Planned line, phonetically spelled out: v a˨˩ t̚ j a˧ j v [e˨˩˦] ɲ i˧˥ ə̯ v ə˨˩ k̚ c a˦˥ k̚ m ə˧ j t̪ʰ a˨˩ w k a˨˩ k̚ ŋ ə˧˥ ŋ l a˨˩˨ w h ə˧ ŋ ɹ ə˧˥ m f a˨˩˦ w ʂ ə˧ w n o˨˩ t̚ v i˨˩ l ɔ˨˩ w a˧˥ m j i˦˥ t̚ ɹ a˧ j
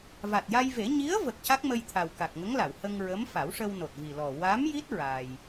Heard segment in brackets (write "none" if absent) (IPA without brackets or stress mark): e˨˩˦